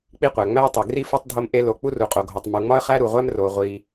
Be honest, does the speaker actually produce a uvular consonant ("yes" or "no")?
yes